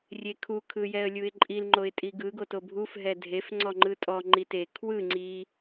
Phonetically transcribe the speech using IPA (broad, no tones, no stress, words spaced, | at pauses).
rʲekʰu kʰɯjɛə̯lʲuɪ̯ǃʼil ŋ͡ǃoɪ̯tʼiɡɯ ɡotobʱuf ɦɛdʱef ŋ͡ǀɔŋ͡ǃɯtʼɔ ŋ͡ǃite kʰwɯ ŋ͡ǀi